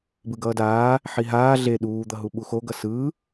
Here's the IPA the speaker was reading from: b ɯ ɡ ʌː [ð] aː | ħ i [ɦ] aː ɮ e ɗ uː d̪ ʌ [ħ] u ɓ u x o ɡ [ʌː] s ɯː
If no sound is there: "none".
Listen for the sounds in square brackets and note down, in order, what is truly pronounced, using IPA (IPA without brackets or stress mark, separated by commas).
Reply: d, ɦ, ɦ, ʌ